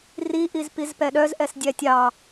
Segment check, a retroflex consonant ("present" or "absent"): absent